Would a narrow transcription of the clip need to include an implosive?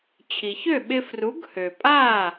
yes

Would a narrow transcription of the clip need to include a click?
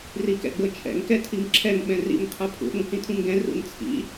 yes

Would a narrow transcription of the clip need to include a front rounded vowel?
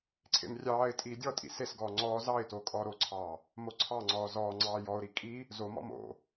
no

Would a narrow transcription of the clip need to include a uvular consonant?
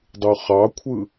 yes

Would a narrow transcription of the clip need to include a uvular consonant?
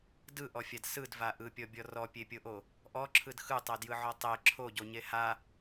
no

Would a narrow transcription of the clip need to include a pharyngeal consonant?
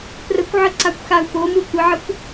yes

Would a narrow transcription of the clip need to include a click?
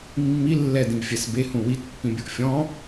no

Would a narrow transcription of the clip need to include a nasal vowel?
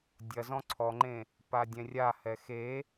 yes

